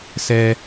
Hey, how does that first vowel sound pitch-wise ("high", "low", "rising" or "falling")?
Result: high